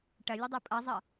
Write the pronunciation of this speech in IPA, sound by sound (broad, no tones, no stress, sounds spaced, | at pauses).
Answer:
ʈ ɐ lʲ ə dˤ o pʼ ʌ zˤ ʌ